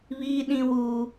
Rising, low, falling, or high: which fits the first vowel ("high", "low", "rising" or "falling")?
high